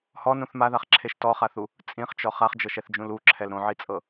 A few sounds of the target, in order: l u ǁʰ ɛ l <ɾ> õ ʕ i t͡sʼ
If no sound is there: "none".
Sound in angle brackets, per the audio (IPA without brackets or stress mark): ɾ